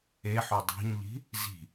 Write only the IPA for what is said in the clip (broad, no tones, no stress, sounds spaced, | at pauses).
e ħ o dˤ o̤ ɲ ʎ i̤ | z i̤